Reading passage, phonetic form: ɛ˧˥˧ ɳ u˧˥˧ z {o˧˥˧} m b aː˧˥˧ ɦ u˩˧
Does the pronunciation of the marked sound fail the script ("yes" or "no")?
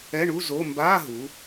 no